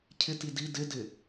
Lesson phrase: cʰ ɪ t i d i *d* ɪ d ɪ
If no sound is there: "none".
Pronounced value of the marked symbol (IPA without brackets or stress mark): d